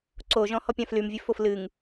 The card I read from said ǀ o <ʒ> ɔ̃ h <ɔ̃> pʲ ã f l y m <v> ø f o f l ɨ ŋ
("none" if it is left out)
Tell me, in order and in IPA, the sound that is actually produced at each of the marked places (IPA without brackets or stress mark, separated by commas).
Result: ʒ, ɔ, vʲ